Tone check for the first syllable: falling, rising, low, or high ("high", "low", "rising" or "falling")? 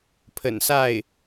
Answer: low